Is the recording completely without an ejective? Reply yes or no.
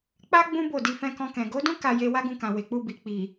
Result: yes